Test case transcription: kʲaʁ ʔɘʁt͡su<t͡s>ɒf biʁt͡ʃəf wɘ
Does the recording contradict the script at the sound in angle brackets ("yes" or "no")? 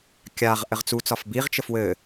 no